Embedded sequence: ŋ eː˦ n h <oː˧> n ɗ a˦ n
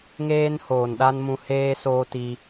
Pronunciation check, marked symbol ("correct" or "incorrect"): incorrect